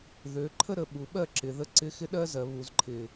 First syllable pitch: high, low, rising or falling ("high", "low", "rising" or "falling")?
rising